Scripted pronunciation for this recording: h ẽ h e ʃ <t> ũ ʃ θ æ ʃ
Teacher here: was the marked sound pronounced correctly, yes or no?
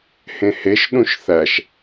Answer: no